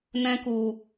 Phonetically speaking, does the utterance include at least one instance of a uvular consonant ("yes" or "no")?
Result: no